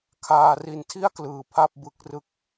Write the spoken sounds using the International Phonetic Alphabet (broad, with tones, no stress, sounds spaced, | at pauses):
kʰ aː˨˩ r i˨˩ n tʰ i˥˩ a̯ k l ɯː˨˩ pʰ a˥˩ p̚ b ɯ˨˩ k̚ r ɯ˨˩ k̚